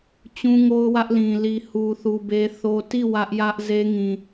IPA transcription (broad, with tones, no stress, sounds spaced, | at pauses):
t͡ɕ ũ˦ ŋ o˦ ʊ̯ w ä˦ ʔ l ĩ˨ l i˨ h u˨ θ u˨ b e˦ θ o˦ t i˦˨ w ä˦ ʔ j ä˦ ʔ z e˦ ŋ ĩ˨